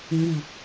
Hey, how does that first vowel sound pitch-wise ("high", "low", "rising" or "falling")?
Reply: low